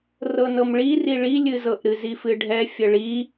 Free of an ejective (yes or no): yes